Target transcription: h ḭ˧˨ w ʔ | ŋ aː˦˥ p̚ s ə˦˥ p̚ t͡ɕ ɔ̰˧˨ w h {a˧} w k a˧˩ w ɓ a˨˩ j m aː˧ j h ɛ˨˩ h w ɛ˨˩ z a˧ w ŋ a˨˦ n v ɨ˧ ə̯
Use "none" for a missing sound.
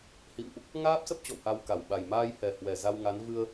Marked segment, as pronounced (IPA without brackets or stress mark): a˧